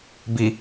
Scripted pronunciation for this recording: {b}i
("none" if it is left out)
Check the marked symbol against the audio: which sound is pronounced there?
b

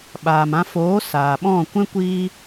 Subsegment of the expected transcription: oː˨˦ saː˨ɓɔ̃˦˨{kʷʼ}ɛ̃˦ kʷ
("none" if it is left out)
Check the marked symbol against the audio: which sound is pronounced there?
kʷ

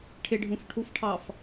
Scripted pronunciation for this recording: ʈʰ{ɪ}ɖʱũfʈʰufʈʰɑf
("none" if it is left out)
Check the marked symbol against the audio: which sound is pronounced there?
ɪ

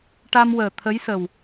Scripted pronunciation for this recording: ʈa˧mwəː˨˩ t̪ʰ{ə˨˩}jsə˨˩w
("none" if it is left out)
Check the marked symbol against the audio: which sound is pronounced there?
ə˧˥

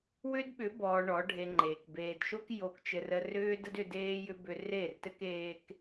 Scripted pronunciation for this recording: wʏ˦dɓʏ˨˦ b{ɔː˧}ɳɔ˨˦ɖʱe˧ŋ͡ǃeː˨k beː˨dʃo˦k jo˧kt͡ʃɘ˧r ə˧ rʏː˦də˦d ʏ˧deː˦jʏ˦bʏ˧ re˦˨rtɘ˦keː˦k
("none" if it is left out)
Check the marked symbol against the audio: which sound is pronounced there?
ɔː˧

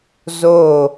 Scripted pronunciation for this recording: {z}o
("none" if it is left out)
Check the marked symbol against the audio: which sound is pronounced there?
z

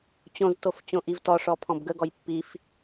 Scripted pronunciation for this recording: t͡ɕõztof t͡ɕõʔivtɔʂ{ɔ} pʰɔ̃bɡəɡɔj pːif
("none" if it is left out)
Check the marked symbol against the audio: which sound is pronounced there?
ɔ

